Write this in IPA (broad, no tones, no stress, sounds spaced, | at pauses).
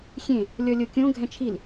xʲ ẽ | lʲ ɔ lʲ o kʲ õ ɡʱ ɛ̃ t͡ʃʰ i l